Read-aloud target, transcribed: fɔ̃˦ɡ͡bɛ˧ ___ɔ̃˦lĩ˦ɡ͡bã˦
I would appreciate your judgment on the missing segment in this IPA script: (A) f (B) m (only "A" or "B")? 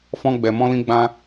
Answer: B